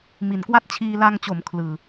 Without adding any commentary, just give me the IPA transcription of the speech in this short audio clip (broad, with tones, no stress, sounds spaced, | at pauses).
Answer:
m i˨˩ n k w a˥˩ t̚ t͡ɕʰ iː˧ l a˧ ŋ t͡ɕ o˩˦ m kʰ l ɯː˨˩